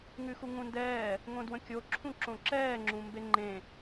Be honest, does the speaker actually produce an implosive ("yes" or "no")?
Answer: no